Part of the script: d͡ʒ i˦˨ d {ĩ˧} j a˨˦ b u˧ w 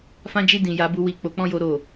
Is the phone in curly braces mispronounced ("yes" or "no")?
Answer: yes